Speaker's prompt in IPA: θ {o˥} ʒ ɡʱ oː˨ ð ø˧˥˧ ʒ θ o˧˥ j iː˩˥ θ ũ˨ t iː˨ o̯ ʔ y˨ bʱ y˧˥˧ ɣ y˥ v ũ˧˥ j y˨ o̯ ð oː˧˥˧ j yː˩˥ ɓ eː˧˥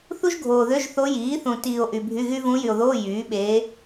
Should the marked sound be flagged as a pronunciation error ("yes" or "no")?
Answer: yes